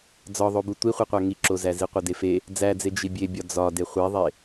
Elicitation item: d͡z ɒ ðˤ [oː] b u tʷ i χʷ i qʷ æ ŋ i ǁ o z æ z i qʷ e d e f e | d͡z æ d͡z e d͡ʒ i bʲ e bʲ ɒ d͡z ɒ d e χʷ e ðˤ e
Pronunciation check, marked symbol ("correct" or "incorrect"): incorrect